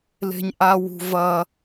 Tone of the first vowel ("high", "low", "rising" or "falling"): high